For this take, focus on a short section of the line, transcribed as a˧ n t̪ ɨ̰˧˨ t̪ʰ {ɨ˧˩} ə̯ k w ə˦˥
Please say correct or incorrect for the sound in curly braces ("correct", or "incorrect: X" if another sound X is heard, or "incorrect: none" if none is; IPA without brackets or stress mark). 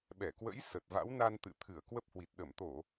correct